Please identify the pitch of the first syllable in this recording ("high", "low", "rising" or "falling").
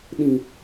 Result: low